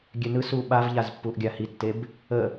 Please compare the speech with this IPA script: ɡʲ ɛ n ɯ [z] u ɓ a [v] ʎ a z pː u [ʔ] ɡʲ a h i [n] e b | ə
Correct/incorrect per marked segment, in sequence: incorrect, correct, correct, incorrect

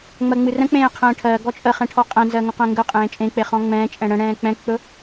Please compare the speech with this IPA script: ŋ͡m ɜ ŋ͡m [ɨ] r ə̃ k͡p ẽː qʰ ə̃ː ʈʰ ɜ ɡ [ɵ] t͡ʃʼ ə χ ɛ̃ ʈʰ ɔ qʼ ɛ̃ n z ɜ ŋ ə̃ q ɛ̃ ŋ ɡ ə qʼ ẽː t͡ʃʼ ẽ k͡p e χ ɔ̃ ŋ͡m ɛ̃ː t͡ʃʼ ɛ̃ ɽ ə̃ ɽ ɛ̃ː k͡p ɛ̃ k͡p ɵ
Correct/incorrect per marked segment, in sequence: correct, incorrect

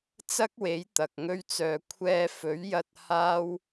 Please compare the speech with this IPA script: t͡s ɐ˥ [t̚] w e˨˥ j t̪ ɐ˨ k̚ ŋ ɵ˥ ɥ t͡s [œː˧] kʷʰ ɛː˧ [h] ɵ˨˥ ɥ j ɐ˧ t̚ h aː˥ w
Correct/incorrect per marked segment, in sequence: incorrect, correct, incorrect

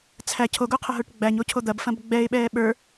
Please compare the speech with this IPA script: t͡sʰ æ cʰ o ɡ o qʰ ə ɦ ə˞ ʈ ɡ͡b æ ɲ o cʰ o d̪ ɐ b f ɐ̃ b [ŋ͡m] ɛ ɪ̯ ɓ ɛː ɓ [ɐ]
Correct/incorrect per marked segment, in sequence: incorrect, incorrect

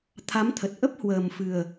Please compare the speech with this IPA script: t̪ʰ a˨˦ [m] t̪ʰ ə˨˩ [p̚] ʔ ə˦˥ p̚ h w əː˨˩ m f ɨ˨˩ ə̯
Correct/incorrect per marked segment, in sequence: correct, incorrect

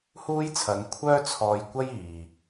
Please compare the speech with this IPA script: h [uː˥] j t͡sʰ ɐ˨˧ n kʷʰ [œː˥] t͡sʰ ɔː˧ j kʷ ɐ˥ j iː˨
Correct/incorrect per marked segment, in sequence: correct, correct

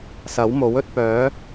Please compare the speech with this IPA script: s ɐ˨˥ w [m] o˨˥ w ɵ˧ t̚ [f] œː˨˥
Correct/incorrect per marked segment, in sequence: correct, incorrect

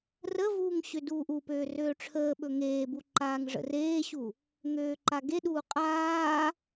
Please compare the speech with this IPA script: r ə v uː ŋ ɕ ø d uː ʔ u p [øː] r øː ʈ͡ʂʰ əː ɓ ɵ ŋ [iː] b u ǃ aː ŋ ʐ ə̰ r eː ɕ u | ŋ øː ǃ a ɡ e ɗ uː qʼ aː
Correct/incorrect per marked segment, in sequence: correct, incorrect

